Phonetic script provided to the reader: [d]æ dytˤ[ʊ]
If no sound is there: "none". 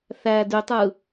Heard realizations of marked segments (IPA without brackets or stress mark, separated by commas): θ, ɯ